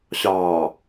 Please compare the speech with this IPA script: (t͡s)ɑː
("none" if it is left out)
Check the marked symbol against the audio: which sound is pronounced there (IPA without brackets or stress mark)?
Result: ɕ